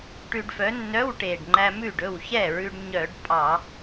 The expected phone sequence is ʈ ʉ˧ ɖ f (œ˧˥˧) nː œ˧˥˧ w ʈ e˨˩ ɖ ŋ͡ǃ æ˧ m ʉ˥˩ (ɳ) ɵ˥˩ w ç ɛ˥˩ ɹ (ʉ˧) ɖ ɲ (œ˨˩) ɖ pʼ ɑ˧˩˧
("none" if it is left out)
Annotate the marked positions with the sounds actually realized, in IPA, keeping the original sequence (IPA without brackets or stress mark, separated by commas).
œ˨˥, ɖ, ʉ˧, œ˧˩˧